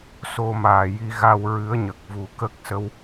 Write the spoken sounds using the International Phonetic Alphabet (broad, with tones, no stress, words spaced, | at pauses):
so˧maː˨˩ ji˧ɣa˧wɹɨ˧˥ə̯ɲə˨˩k̚ vu˨˩˦kə˦˥k̚sə˧w